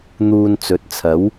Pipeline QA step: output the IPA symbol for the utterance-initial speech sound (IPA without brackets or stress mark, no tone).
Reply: n̪